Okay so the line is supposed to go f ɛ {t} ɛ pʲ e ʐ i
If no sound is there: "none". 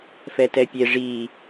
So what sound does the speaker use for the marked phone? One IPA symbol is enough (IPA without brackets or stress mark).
t